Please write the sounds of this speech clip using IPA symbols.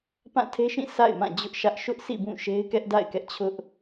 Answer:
p ã˦˨ tʰ e˦ ʃ ĩ˦˨ sʰ a̰˦˨ ɪ̯ m ã˦˨ d͡ʑ ʊ˦ ʔ ʃ ä˦ ʔ ʃ ʊ˦ ʔ s ḭ˦˨ b ũ˦˨ ʃ e˦ ɪ̯ k ɛ˦ ʔ d a̰˦˨ ɪ̯ k ɛ˦ ʔ t͡ɕʰ ʊ˦ ʔ

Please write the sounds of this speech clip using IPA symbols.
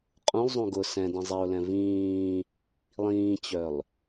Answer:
qʼ ũ lˠ zˤ ũ ɡ ʊ s ɛ̃ d ĩ zˤ i ʊ̯ l ɛ̃ v ĩː | lˠ ĩː t͡ɕ œ lˠ

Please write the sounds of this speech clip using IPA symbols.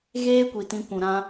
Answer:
ɣ eː˦ kʷ i˨ t ĩ˧ kʷ ũ˨ ɾ ã˧

